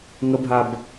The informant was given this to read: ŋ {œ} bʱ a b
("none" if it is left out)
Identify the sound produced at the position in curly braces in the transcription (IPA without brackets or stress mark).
ə